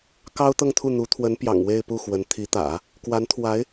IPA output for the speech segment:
k ɑ˥ ʊ̯ t̪ ɤ˥˧ ŋ t̪ʰ u˥˩ n̪ u˧˥ t̪ʰ w ə˧˥ n p j ɑ̰˨˩ ŋ w e˥˧ ɪ̯ p u˥˩ x w ə˧˥ n t̪ʰ i˧˥ t̪ ä̰˨˩˦ | k w a˧˥ n t̪ʰ w a˧˥ ɪ̯

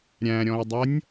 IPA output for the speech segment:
ɾʲ æ̃ ɾʲ ɔ̃ ɪ̯ dˤ ʌ nʲ

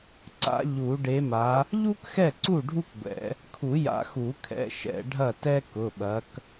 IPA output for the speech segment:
ǀ a̰˨˦ ʎ u˨˩˦ ɖ e˨˦ m a˨˦ | ʎ u˥ k x ɛ˥˩ ǀ u˥˩ ɖʱ u˥ k ɡʷ ɛ̰˨˩˦ | kʰ u˨˩˦ j a̰˨˩˦ x u˨˩˦ kʰ ɛ̰˩˧˩ ʃ ɛ̰˨˩˦ ɖʱ ɐ˥˩ t ɛ˥ k ʊ˩˧˩ ɓ ɐ˨˦ k

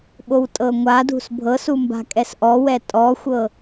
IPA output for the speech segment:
ɓ o w tʼ ɤ ŋʷ a d ṳ s bʱ ɤ s u m b a̤ kʼ ɛ s ʔ ɔ w ɛ tʼ ɔ xʷ ɤ

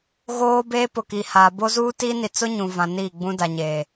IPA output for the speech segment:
ɣ oː˦ b eː˦ p ʊ˨ k i˨ h aː˨ b o˦ z uː˦ t iː˦ n i˨ t͡s ʊ˦ ɲ ũ˨ v ã˨ n iː˦˨ ɡ͡b ũ˦ d a˨ ɲ eː˨

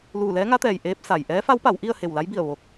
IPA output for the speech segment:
l uː˧˩ l ɛː˧˥ ŋ a˧˥ t̪ ɛː˩ j ʔ eː˧˥ p̚ s a˩ j ʔ ɛː˧˥ f a˧˥ w p a˩˧ w ʔ i˥˨ ə̯ h e˧˩ w l a˧˥ j b i˧˩ ə̯ ʋ o˧ k̚

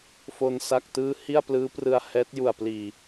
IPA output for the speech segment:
f o˧ n s a˥˩ k̚ t ɯː˥˩ h i˥˩ a̯ p l ɯː˦˥ p r ɯ˧ a̯ h ɛː˦˥ t̚ j u˨˩ a̯ p l iː˨˩

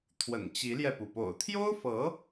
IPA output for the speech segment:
t̪ʰ w ə̰˨˩ n t͡ɕ i˧˥ l j ɛ˧ p u˩ p o̰˨˩ ʊ̯ t̪ʰ j o˥ ʊ̯ f ɤ˧˥

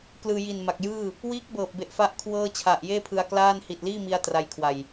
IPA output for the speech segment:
k l ɯː˧ j i˨˩ n m a˨˩ k̚ j ɯː˥˩ | w iː˦˥ k̚ b ɤː˨˩ p̚ b e˨˩ ʔ f a˥˩ ʔ kʰ w ɤː˥˩ t͡ɕʰ a˨˩ ʔ j eː˥˩ pʰ ɯ˧ a̯ k l aː˥˩ n h i˨˩ t̚ l iː˥˩ m i˧ a̯ t r a˧ j kʰ w a˨˩ j

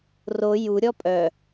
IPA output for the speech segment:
r o j u ɾʲ ɔ pʼ œ

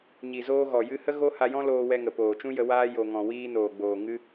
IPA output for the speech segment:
ɲ i˨ z oː˧ ɣ ɔ˨ j ɨ˧ h ə˦ ɣ o˦ h a˧ j ɔ̃˦ l oː˧ w ɛ˧ ŋ ə˨ p oː˨ t͡ʃ ũ˦ j ə˧ w aː˧ j o˨ ŋ ɔ̃˨ w iː˧ n oː˨ ɡ͡b oː˨ ŋ ɨ˦

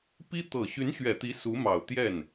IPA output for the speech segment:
p i˥ t̪ ɤ˨˩ ɕ y˧˥ n ɕ ɥ ɛ˨˩ t̪ i˧˥ s u˧˥ m ɑ˨˩ ʊ̯ t̪ j ɛ˥˩ n

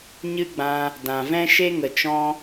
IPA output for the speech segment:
ɲ ɨ˦ ɡ͡b ã˧ | d ã˨ v ɛ̃˦ ʃ e˦ ŋ ə˨ t͡ʃ ɔ̃˦

